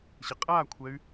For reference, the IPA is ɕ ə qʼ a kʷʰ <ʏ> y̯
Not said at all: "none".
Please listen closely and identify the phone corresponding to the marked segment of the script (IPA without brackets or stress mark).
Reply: ɛ